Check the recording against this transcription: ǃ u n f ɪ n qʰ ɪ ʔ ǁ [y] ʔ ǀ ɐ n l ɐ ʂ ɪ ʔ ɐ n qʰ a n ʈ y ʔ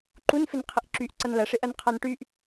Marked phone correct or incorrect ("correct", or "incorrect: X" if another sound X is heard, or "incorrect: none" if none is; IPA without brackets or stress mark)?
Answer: correct